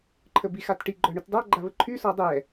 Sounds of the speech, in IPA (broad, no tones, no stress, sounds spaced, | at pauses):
ǃʰ ə b i x a t ʈ i ɡ͡ǃ œ ɳ y t dˤ a ɡ͡ǃ a β ə ǃʰ y s ɔ dˤ ɛ